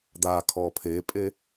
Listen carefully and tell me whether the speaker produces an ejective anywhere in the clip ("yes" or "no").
yes